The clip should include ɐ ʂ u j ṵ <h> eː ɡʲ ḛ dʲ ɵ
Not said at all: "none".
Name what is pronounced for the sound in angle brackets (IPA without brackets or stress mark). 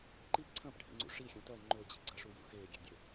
x